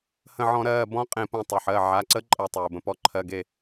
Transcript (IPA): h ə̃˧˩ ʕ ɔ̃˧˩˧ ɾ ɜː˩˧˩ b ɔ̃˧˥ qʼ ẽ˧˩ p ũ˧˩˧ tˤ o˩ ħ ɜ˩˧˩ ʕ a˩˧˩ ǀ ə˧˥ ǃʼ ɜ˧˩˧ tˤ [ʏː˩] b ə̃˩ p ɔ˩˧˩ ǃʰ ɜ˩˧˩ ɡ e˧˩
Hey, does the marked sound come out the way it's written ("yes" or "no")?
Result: yes